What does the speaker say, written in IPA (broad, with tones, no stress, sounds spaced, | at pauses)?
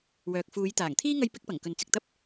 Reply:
w œː˨ k̚ f uː˨˧ j t̪ aː˨˩ ŋ t̪ʰ iː˥ ŋ ɐ˥ j p ɪ˥ k̚ p ɐ˨˩ ŋ k ɵ˨ n t͡s ɪ˨ k̚ t̪ ɐ˥ p̚